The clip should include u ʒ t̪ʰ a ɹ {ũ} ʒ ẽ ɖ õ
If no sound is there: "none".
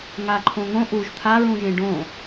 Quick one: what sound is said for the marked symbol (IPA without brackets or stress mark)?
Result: ũ